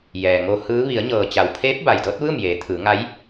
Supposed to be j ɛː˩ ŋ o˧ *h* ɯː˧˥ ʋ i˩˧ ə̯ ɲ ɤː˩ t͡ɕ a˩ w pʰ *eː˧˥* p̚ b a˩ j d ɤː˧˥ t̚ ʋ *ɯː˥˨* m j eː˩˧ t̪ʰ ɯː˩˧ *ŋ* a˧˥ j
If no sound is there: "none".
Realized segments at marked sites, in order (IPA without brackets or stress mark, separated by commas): h, eː˧˥, ɯː˥˨, ŋ